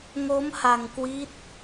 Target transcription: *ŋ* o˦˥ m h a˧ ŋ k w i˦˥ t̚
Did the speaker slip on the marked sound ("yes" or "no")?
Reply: no